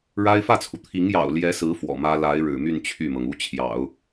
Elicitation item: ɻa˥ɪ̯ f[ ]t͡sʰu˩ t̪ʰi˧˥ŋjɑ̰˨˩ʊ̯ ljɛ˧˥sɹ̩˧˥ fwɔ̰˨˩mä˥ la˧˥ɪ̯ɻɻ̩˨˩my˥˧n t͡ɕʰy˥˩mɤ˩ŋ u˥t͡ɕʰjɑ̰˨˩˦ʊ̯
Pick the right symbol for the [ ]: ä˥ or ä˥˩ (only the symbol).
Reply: ä˥˩